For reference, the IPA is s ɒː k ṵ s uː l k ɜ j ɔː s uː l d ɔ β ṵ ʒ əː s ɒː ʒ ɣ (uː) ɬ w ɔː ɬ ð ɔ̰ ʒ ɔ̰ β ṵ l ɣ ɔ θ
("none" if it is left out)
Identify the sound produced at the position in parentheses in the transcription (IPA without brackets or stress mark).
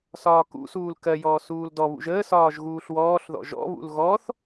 uː